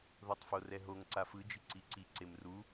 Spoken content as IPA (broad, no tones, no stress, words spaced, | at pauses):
ðotˤforɛɦoŋ ǀafɯ d͡ʒiǀiǀi ǀemru